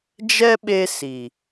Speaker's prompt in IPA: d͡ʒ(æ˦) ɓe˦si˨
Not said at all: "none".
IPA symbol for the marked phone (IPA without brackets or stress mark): ɛ˦